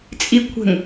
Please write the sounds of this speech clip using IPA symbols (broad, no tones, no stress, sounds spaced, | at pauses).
t͡sʼ i kʷʰ ə̤ ŋ